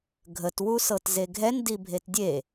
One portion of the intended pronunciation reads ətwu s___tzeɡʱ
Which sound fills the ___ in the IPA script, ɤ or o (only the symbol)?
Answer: ɤ